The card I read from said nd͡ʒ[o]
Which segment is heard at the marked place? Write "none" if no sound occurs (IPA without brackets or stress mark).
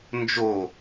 o